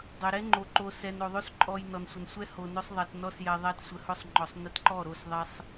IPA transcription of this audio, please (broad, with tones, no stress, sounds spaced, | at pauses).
dˤ ɵ˨ ɾ ɛ˦ ŋ͡ǃ o˨ ǃ o˨ s ɛ˨ n o˨ ðˤ o˦ s ǃʼ ɔ˧ j n ɔ˨ n sʷ ə˨ n sʷ ɛ˧ h o˨ n ɵ˧ sˤ ðˤ ɛ˨ t n ɔ˧ s j ɛ˨ ðˤ ɛ˧ t sʷ ə˨ h ɵ˧ sˤ ŋ͡ǃ ɔ˨ sˤ n ə˧ t ǃ ɔ˦˨ ɾ o˦˨ s ðˤ ɛ˧ sˤ